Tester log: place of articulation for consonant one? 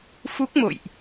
labial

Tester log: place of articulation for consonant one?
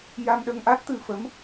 palatal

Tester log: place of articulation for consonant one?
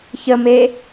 palatal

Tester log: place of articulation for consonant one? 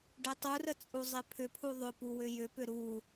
retroflex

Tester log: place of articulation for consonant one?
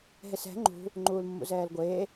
glottal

